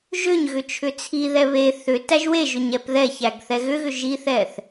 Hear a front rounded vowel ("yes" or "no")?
yes